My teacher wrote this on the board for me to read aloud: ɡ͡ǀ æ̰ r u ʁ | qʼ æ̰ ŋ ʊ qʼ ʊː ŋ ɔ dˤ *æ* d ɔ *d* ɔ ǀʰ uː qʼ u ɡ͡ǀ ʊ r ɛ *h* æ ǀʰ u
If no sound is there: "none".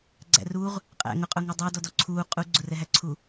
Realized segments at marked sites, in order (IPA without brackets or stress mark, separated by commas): æ, d, ɦ